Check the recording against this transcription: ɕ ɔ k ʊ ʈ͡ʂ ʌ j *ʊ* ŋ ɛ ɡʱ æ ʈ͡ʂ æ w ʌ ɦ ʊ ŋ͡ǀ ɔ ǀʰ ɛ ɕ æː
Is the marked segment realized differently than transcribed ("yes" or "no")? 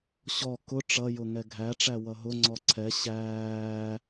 no